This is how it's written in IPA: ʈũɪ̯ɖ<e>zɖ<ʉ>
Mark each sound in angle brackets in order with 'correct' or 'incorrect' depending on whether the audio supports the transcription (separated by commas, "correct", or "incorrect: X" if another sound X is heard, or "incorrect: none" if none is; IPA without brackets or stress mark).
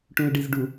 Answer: incorrect: i, incorrect: u